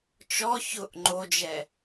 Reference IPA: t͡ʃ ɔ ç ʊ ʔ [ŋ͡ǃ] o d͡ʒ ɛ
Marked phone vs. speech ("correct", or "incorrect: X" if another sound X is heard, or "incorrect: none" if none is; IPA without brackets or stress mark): correct